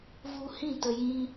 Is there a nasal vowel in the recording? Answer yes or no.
yes